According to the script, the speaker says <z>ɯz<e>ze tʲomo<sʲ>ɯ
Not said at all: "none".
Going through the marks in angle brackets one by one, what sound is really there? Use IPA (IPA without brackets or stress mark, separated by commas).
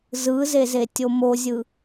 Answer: z, e, zʲ